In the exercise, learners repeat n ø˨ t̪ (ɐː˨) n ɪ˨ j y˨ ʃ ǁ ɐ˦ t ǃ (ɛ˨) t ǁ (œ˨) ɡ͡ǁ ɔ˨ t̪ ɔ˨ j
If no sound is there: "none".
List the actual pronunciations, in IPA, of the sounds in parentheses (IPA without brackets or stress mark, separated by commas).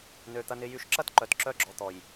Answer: ɐ˨, œ˨, œ˦